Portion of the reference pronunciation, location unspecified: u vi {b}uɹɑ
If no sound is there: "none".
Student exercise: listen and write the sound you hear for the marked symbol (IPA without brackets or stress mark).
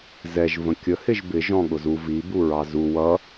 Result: b